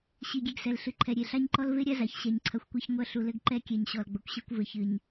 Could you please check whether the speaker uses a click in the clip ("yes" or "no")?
yes